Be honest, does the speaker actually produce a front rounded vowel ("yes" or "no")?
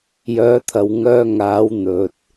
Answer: yes